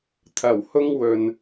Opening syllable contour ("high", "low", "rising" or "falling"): low